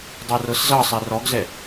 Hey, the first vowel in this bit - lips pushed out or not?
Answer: no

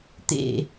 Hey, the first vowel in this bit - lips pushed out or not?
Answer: no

